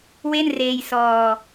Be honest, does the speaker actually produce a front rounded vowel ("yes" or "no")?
no